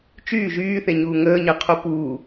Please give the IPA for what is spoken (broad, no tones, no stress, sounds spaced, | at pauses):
t͡ʃ yː ʒ yː θ e ɲ uː ŋ əː ɲ ɜ qʰ o p uː